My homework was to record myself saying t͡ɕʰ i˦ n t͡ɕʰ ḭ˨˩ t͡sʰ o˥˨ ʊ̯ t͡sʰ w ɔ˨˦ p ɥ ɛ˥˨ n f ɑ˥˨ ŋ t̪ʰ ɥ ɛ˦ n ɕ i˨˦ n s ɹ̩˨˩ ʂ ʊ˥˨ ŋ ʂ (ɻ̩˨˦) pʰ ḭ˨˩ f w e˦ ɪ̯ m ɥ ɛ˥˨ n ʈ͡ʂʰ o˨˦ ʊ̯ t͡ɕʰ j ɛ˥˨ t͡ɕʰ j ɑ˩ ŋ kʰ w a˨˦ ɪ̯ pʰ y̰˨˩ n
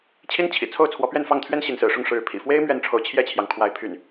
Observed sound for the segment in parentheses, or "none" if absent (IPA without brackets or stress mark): ɻ̩˨˦